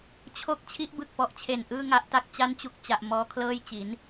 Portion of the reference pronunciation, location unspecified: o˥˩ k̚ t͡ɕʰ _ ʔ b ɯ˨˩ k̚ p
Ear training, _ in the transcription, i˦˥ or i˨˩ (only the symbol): i˦˥